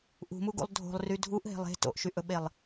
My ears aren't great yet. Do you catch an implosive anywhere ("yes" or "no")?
yes